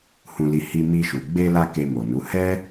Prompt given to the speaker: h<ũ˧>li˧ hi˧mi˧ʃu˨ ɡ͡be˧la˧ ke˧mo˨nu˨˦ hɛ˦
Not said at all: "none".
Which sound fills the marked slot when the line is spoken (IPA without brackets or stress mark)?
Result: ũ˧